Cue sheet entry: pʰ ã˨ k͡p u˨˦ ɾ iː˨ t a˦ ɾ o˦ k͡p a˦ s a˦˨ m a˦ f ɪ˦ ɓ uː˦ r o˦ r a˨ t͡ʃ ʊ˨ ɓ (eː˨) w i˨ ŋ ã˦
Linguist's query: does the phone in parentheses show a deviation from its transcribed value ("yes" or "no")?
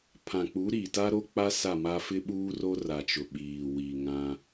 yes